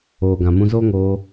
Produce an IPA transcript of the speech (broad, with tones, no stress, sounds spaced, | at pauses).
oː˨ ɡ ã˨ m ũ˧ z oː˦ ŋ oː˧